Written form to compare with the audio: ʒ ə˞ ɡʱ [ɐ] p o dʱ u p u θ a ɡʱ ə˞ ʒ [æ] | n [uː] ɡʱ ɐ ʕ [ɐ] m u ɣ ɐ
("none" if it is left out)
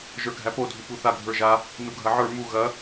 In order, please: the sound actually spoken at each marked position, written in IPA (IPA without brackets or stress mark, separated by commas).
æ, a, u, ə˞